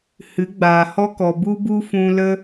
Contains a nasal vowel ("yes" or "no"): yes